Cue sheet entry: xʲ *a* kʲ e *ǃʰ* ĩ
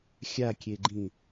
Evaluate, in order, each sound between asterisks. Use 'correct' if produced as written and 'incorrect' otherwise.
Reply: correct, incorrect: ɡ͡ǃ

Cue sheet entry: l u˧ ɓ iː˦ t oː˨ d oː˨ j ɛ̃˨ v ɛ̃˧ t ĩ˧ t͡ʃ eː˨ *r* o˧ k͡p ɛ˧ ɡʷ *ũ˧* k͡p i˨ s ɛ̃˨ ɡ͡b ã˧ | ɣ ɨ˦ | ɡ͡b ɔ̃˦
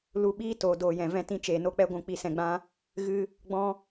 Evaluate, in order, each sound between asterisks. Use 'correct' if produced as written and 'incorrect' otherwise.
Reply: incorrect: n, incorrect: ũ˨

